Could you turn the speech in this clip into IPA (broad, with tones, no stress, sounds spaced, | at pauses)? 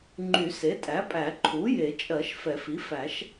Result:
ŋ͡ǃ y˨˩˦ s e˩˥ tʼ æ˩˥ pʼ æ˨˩˦ ǃʰ u˩˥ j e˨˩˦ t͡ʃʼ ɜ˨˩˦ ʃ f ɛ˨˩˦ f i˩˥ f æ˨˩˦ ʃ